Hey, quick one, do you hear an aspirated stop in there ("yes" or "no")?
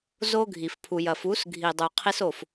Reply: yes